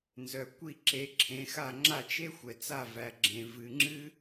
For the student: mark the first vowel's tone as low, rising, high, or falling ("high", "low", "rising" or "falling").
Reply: low